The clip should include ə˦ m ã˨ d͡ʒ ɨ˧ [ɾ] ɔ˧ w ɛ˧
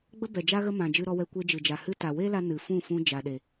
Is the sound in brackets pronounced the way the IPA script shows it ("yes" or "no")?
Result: yes